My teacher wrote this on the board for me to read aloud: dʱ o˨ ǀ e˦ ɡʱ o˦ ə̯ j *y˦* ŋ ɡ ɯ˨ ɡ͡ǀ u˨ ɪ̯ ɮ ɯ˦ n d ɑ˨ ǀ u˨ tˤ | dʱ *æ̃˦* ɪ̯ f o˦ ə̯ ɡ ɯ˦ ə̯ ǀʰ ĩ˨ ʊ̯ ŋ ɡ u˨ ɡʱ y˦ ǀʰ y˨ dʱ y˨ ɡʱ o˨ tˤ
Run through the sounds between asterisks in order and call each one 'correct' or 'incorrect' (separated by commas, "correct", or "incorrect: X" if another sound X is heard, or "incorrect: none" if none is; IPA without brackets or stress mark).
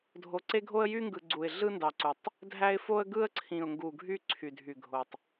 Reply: correct, incorrect: æ˦